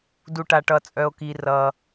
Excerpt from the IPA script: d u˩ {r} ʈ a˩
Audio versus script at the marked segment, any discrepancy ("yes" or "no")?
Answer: yes